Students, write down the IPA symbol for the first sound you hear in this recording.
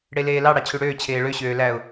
ɽ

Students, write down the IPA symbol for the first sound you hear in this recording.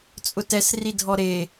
t͡sʼ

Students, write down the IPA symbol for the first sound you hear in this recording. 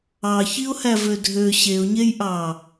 ɑ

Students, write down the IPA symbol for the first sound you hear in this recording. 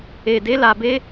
e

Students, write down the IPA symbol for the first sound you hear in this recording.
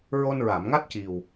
ɹ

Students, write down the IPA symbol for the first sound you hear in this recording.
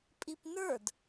pʼ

